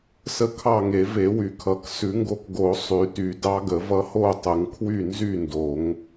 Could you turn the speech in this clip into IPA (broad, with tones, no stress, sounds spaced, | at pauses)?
s ə˧˥ kʰ ɑ˥˨ ŋ e˨˩˦ v e˨˩˦ w y˨˩˦ kʰ ʌ˨˩˦ k s ʉ˨˩˦ ŋ ɡ o˧˥ k ɡ o˨˩˦ sˤ y˨˩˦ t y˨˩˦ d ɑ˧˥ ɡ ə˨˩˦ v ʌ˧˥ h o˥˨ tˤ ə˨˩˦ ŋ kʰ w y˥˨ n z y˥˨ n d o˨˩˦ ŋ